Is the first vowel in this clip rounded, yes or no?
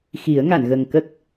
no